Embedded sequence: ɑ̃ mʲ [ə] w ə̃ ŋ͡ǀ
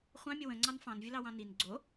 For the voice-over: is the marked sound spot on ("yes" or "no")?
yes